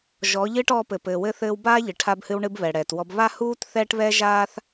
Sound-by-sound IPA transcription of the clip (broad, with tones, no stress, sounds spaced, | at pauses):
ʒ ɔː˨˦ ʎ ɨː˦ ʈ ɔː˧ p ɘ˨ p ɘː˨ w ɘ˧ θ ɘː˧ w b aː˦ ʎ ɨ˨ ʈʰ a˧ b h ɨ˧ w ɳ ɨ˧ b β ɛ˨ ɽ ɛː˨ t w ɔ˧ b β a˦ h uː˦ t θ ɛː˦ ʈ β ɛ˦ ʒ aː˦ θ